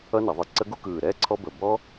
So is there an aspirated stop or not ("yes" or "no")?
yes